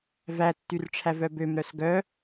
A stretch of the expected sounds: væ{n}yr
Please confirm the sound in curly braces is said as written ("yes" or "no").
no